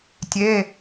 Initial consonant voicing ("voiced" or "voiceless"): voiceless